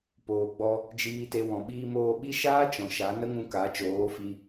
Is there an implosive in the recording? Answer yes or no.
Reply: yes